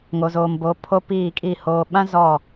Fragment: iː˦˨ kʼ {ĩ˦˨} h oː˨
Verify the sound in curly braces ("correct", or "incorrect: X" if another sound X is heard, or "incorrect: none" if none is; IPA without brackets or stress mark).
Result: incorrect: i˦˨